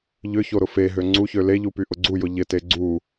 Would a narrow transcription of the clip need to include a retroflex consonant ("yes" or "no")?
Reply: no